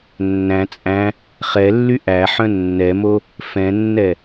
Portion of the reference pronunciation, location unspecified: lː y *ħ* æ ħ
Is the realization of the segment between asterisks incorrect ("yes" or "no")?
yes